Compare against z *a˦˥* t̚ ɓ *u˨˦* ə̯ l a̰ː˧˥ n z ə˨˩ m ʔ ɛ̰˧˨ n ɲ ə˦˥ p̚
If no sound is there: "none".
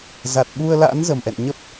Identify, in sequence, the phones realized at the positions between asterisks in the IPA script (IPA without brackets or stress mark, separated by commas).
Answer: a˨˩, u˧